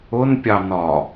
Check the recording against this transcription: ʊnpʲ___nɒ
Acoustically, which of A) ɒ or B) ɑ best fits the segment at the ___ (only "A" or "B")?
B